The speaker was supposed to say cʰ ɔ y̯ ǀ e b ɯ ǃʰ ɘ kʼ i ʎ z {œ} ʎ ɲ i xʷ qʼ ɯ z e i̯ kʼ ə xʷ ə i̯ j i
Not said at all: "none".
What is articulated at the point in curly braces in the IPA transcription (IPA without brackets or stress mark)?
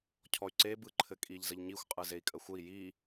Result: ə